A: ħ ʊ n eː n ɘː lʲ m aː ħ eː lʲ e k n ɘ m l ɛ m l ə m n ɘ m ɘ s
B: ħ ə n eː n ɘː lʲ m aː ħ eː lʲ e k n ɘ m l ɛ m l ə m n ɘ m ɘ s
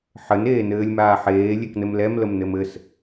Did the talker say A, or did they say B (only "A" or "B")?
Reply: B